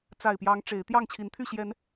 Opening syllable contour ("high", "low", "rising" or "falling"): low